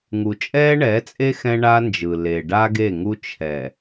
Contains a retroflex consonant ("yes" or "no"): yes